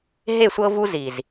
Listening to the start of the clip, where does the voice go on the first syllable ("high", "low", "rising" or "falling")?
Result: falling